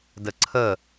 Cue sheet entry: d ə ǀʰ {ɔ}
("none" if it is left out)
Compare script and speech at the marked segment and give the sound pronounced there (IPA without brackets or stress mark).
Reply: ə